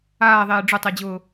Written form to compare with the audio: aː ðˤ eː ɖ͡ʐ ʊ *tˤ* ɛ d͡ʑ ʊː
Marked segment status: correct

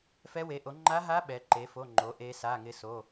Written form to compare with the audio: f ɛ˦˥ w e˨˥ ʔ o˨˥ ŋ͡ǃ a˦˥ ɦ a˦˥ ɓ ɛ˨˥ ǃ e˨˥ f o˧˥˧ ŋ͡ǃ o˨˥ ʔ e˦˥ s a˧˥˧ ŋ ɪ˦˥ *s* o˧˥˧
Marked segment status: correct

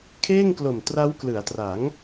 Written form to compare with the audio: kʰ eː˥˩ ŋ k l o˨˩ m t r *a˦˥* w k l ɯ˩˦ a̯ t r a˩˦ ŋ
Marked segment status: correct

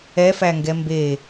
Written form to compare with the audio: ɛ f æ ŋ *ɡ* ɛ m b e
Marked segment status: correct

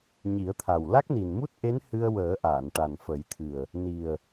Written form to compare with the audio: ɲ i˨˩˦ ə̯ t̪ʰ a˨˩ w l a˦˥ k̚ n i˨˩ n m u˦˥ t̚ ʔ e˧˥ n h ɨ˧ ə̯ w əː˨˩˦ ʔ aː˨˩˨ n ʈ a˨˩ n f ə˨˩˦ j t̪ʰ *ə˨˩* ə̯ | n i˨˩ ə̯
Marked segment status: incorrect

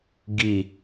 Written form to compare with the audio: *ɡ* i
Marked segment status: correct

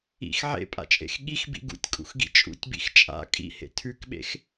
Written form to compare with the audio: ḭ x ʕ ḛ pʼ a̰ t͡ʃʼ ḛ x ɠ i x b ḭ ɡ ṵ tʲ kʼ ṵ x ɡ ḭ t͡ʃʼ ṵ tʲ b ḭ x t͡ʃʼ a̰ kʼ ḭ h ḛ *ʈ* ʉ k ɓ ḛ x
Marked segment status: incorrect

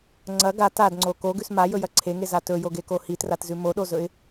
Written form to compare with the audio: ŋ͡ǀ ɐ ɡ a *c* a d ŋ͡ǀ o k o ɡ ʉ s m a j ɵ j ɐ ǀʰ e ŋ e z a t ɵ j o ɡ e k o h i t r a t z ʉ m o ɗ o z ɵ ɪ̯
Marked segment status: incorrect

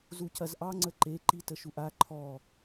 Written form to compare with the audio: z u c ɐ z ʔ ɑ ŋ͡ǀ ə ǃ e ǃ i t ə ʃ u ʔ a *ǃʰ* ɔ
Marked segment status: correct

